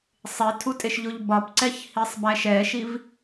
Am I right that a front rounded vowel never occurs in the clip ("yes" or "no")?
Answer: yes